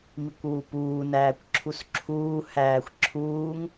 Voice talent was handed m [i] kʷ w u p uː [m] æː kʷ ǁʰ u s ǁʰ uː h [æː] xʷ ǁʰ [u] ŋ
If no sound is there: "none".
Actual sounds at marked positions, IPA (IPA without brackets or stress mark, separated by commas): i, n, æː, uː